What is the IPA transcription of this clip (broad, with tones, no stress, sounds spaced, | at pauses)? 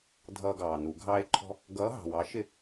dʱ ʌː˦ ɡ ɑː˨ n u˨˩˦ ɡʱ ɑː˦ e̯ ǃʰ ɔ̤˦ | ɡ ʌː˨˥ ɦ ɑ̤˨ w ɑ˨˥ ʃ ɪ˥˨